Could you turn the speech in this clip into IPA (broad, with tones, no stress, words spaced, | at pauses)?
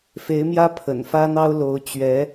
fe˧˥ɪ̯mjä˥ pʰə̰˨˩nfä˥n̪ɑ˥ʊ̯ lo˧˥ʊ̯ t͡ɕɥɛ˧˥